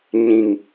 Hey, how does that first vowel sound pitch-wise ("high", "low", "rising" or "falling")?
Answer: low